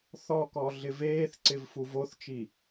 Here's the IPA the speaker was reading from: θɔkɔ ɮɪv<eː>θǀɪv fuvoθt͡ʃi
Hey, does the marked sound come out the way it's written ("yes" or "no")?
yes